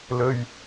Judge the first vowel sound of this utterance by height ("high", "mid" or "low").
mid